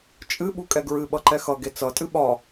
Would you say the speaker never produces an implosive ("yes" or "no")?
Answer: no